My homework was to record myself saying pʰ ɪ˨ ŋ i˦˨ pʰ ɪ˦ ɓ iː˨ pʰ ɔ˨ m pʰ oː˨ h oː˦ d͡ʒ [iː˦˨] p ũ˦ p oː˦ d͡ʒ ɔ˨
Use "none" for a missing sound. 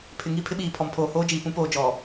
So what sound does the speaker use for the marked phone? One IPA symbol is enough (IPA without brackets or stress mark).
iː˨